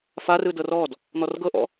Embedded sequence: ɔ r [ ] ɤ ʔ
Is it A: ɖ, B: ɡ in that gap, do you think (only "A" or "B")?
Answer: B